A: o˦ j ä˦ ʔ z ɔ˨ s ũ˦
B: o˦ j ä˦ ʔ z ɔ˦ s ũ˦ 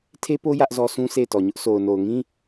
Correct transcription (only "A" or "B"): B